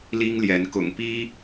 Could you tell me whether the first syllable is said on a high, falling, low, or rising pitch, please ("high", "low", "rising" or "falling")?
high